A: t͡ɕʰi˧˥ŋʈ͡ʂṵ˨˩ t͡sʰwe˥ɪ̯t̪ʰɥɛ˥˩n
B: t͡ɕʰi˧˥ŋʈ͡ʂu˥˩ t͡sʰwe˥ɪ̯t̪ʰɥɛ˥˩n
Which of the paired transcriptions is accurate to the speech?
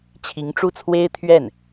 B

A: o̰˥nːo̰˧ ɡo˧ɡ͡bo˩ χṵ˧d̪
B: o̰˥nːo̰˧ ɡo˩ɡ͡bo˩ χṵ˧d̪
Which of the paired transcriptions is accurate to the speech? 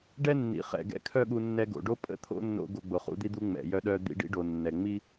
A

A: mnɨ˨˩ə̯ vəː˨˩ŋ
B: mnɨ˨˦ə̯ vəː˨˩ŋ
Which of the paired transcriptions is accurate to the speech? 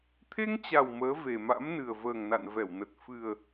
A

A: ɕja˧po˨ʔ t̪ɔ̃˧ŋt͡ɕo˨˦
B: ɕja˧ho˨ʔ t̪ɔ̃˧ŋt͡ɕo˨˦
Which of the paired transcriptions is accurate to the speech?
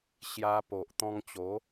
A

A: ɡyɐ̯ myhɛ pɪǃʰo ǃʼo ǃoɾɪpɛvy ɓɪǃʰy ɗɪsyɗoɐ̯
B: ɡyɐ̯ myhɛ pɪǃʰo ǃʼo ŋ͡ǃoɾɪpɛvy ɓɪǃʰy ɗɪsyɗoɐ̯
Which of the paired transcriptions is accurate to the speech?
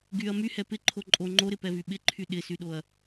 B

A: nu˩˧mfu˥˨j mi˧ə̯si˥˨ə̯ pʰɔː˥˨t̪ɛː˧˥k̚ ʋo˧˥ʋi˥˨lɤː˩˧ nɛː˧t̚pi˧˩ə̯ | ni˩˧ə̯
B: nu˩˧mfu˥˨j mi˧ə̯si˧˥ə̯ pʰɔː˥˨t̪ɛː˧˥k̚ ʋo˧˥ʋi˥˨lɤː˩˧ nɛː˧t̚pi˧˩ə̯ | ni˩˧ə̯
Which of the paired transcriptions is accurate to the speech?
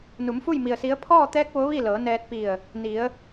B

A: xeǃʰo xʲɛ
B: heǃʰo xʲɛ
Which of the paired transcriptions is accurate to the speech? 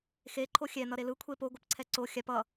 A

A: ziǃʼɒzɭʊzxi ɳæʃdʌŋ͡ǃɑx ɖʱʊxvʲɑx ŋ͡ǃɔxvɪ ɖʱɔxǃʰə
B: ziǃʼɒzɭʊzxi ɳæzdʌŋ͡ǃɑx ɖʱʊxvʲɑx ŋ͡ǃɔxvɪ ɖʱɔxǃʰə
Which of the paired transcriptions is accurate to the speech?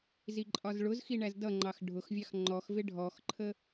B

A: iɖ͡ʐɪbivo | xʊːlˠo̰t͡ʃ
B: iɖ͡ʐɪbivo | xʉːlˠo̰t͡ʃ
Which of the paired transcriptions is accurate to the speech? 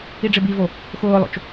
A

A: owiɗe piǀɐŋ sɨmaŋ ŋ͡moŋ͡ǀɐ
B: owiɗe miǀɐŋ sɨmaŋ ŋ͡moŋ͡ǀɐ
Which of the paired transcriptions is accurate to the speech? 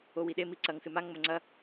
B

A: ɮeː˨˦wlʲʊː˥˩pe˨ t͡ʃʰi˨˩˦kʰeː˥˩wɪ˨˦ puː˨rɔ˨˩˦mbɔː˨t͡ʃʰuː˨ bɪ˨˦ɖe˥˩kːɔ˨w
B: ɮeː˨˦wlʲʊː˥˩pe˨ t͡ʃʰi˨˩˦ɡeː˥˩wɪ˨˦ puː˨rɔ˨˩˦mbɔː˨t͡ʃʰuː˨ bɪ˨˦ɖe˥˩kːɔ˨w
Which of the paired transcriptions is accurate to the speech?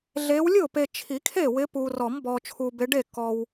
A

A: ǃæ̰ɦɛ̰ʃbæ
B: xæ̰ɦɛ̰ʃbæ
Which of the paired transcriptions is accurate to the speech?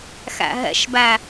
B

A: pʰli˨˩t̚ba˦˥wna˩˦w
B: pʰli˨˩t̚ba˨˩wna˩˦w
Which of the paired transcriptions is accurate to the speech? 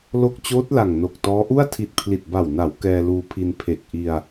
B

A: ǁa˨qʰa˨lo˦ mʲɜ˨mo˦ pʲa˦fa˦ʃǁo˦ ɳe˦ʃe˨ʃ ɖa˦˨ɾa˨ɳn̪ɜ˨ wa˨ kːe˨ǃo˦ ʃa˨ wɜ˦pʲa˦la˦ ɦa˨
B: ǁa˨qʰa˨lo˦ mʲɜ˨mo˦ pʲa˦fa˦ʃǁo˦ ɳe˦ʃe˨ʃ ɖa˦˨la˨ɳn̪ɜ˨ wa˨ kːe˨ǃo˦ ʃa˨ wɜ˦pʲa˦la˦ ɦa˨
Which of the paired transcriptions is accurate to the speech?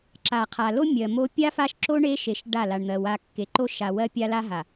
B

